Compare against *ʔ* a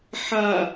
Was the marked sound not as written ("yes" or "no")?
yes